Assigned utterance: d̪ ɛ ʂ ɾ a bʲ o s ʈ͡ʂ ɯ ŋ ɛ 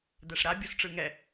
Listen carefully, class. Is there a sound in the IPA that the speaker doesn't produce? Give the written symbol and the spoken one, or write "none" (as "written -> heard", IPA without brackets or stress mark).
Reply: none